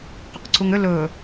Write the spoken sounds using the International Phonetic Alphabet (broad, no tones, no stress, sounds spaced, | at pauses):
q ʏ q ǀ u ŋ ʏ l ɵ